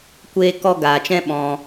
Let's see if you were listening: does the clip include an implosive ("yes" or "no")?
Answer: yes